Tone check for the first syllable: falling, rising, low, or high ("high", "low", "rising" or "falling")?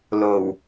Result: low